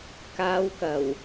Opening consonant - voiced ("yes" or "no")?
no